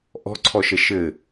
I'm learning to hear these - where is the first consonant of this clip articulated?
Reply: throat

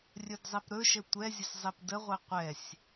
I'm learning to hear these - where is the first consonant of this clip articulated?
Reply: tongue tip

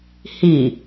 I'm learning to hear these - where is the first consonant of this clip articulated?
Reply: throat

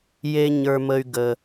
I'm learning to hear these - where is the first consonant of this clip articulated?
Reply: palate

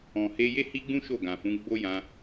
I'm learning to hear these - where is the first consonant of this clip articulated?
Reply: throat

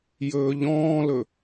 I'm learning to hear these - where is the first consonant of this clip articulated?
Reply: palate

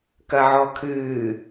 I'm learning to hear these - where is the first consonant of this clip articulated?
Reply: velum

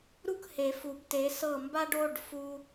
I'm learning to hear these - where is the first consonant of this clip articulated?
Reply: tongue tip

